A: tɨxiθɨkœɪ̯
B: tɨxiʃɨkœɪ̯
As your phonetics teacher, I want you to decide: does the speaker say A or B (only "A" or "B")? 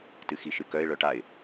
B